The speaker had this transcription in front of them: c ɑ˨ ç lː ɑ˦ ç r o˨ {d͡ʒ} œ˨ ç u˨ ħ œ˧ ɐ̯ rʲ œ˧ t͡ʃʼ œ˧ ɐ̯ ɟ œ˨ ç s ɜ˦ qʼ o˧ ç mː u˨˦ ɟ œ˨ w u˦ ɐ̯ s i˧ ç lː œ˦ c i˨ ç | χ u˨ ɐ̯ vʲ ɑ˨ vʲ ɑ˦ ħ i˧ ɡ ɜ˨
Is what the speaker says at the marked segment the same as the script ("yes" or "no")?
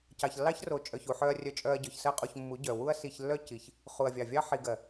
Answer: no